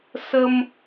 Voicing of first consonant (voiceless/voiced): voiceless